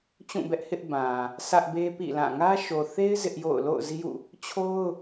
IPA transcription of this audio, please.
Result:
t͡ɕ ũ˦˨ b ɛ˦ ʔ h ɪ˦ ʔ b ã˨ | s ä˦ ʔ b e˦ p ḭ˦˨ l ã˦˨ ŋ ä˦ ʃ o˨ θ e˦ ɪ̯ z ɪ˦ ʔ j o̰˦˨ ʊ̯ l o̰˦˨ ʊ̯ z i˦ j ṵ˦˨ | t͡ɕʰ o˦ ʊ̯

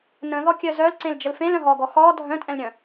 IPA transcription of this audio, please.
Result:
n ə̃ ð ɔ kʲ œ z œ l ǀ ẽ l d͡ʒ ə l f ẽ l œ̃ ɦ ɔ ɡ ɔ x ɔ dʱ œ̃ tʼ ɛ̃ l ɾʲ œ̃

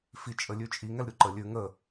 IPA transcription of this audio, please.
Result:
f i t͡ʃʼ ə lʲ ʉ t͡ʃʼ i ŋ ɛ l ɾʲ u ǃ ə lʲ ʉ ŋ ə

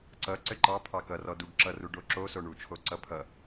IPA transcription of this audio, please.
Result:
ǀ ʌ ǀ ɘ ǃ ɑ pʰ ɑ k ʌ r ɔ d u ɡ ǁ ʌ r u ɖ o ǁ o s o ɳ u t͡ʃʰ o ǀ ʌ pʰ ʌ

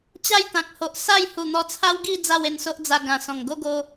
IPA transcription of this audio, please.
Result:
t͡ɕ a˥˧ j t̪ ã˨ k̚ h o˨ ʔ s a˥˧ j h u˨˩ n̪ ɔ˧ t͡sʰ a˦ w ɡ i˥˧ d͡z a˥˧ w e˧ n s o˦ ʔ d͡z a˧ ɡ ã˨˩ s ɔ̃˨˩ ŋ ɡ o˦ ɡ o˧

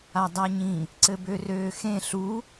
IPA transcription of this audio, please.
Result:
a dˤ a ɲ ĩ | ǀ ɘ b ø r øː x ẽ ɬ u

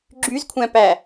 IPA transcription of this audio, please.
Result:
ɡ͡ǁ y z kʷʰ æ̃ p æ

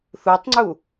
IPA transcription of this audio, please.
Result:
θ u tˤ ŋ͡ǀ u

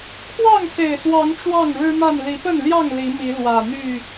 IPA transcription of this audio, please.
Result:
kʰ w ɑ˥˨ ŋ s e˨˩ ɪ̯ s w ɑ˨˦ ŋ ʈ͡ʂ w ɑ˥˨ ŋ ɻ ɻ̩˦ m a˥˨ n l i˨˦ p ə˥˨ n l j ɑ˥˨ ŋ l i˨˦ m i˨˦ l w ä˨˩ n̪ y˥˨

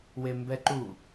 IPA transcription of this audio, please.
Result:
w e m b ɛ ǃ u

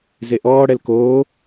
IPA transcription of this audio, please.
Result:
z e ʔ ɔː ɽ ɛ l k oː

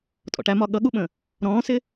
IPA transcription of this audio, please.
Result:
tʼ ɔ̰ ʈ æ m ɒ ɠ ʌ ɠ u ɓ ə̃ | ɾ ɔ̃ː s ɪ

